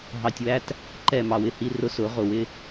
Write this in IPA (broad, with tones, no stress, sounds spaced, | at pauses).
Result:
ɦ ɑ˨ tʲ w æ˦ t | ǃ ɛ˦˨ m ɑ˨ w ɪ˨ h i˦ r ʊ˦ s ʊ˨˦ ʁ ʊ˨ w ɪ˦